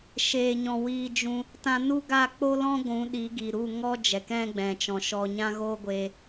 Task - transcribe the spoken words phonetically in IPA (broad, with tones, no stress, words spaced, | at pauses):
ʃeː˨ɲɔ̃˨ wiː˧d͡ʒũ˧ | tã˧nu˦ɡa˦˨ k͡po˦lɔ̃˦ ɡʷũ˨˦ɗi˨˦ɡi˨ɾu˦˨ ŋɔ˦ d͡ʒɛ˨kɛ̃˦ɡ͡bɛ̃˨ t͡ʃɔ̃˨ʃɔ˧ ɲã˦ɣoː˦ɡʷeː˧